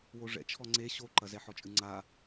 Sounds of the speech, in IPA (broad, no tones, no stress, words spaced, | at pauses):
woʐɛ̰ t͡ʃʰɔŋ͡ǀe ɕoǃɐ zɛħɔt͡ʃʼɨŋ͡ǀa